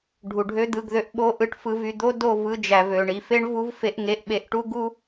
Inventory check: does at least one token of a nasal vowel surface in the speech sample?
no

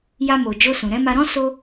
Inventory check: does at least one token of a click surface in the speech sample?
no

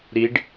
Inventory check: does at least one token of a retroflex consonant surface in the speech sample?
yes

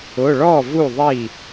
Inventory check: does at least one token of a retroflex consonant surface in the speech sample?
yes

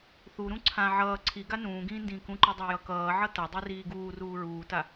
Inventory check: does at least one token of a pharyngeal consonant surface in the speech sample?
yes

